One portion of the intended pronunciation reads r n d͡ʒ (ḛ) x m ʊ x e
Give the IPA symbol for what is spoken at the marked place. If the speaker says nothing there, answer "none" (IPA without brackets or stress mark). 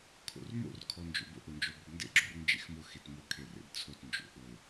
ḛ